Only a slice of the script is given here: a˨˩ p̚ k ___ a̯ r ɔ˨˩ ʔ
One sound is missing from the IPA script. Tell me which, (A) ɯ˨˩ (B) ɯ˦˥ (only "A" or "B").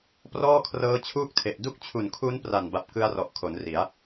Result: B